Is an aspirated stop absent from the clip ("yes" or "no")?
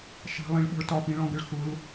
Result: yes